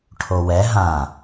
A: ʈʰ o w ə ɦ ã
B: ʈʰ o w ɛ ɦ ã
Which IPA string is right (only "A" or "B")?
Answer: B